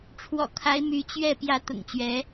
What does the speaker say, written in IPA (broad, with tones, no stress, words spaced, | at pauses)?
ʈ͡ʂʰwɔ̰˨˩kʰa˧˥ɪ̯ my˧˥ t͡ɕɥɛ˥˩ pjä˧˥ t̪ʊ̰˨˩ŋt͡ɕɥɛ˧˥